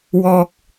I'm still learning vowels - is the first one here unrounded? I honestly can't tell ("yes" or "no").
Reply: no